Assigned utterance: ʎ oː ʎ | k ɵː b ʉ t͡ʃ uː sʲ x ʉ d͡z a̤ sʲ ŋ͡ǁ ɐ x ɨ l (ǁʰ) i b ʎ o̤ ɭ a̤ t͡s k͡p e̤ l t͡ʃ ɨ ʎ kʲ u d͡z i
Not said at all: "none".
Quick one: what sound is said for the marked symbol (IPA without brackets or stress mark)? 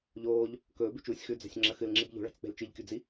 ŋ͡ǁ